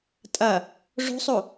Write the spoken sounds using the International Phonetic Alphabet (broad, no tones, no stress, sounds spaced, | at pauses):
tʼ ɐ | ʐ o̤ sˤ o